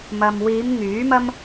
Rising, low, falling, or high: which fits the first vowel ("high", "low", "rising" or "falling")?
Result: low